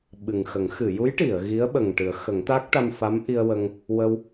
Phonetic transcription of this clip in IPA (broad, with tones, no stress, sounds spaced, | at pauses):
ɓ ɨ˨˩ ŋ x ə˨˩˦ ŋ x ɨ˨˩˨ j u˧˥ j ʈ i˨˩˨ ə̯ ɣ i˧˥ ə̯ ɓ ə˨˩ ŋ ʈ ɨ˨˩˦ ə̯ x ə˨˩˦ ŋ t̪ a˦˥ k̚ ʈ a˧ m f a˧˥ m ʔ i˧ ə̯ w ə˧ ŋ | w ə˧ w